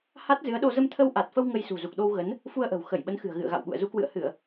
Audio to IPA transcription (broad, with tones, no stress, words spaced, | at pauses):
ha˦˥t̚ zɨ˨˦ə̯ɗo˧ zə˧mt̪ʰə˧wʔa˨˩t̚fə˧w ŋə˧j sṳ˨˩zu˨˩k̚ɗo˧wɣə˨˦n | fu˧ə̯ʔə̤˨˩w xə˧˩jɓə˨˦nxɨ̤˨˩ə̯ ɣɨ̰˧˨ə̯ɣa̰˧˨wɓṵ˧˨ə̯ zu˨˦kwɨ̰˧˨ə̯hɨ˧˩˨ə̯